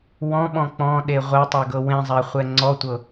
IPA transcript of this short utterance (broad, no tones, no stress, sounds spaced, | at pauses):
w ɔ̃ ɓ ɔ̃ k͡p ɔ̃ ɗ e ʁʷ ɛ tˤ e ɡ ɤ w ẽ zˤ a χʷ ɛ ŋ͡ǀ ɔ tʷ ɤ